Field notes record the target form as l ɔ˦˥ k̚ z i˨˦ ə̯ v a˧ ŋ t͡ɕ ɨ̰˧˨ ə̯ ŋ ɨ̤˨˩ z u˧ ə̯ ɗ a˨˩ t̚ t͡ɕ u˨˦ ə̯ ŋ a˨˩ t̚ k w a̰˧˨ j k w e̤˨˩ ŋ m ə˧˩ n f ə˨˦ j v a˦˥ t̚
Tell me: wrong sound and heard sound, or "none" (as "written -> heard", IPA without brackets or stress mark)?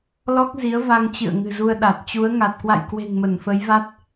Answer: none